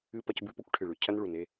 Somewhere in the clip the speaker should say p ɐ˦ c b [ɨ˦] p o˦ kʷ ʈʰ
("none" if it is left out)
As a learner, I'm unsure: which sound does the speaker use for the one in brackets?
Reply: ʉ˦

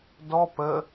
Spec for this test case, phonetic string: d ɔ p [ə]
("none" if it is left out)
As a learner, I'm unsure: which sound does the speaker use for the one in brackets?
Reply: ə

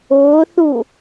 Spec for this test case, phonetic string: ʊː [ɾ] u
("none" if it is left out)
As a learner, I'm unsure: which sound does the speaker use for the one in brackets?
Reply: θ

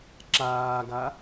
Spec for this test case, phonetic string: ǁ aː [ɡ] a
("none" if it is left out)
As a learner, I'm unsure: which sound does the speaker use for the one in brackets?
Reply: ɡ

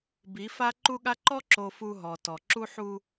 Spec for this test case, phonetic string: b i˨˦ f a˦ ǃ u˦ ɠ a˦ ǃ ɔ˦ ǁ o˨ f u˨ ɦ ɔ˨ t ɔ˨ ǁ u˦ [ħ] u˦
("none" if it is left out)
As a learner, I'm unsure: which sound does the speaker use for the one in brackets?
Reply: ħ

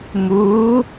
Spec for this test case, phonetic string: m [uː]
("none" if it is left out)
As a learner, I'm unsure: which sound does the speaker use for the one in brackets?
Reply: uː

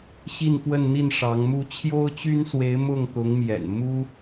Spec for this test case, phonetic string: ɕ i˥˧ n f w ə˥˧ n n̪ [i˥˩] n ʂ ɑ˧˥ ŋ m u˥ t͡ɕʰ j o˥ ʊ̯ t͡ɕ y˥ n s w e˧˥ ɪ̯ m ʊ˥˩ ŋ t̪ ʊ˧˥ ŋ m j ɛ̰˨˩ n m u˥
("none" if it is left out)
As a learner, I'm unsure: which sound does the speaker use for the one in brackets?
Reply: i˥˩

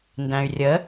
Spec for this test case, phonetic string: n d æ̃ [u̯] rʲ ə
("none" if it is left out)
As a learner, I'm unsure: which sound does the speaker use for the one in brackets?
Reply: y̯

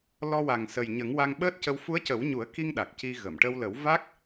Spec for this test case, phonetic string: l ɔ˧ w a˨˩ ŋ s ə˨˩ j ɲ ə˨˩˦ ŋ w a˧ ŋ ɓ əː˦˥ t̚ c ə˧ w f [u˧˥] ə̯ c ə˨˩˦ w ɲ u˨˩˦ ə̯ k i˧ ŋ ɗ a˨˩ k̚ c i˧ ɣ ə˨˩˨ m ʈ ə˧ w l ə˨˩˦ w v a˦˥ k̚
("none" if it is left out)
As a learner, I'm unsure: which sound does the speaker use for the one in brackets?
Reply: u˧˥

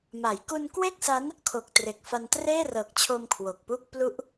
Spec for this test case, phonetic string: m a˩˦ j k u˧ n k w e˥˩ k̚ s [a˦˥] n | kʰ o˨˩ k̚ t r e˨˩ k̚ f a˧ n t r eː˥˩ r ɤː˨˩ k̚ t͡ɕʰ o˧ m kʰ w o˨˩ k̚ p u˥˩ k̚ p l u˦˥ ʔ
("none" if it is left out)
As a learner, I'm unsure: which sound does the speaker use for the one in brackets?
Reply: a˦˥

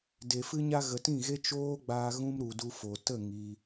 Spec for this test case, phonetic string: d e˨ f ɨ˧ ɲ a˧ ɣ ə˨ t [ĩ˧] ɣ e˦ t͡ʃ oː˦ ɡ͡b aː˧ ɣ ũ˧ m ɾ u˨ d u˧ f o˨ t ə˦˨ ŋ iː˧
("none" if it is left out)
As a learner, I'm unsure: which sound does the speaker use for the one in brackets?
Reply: ĩ˦˨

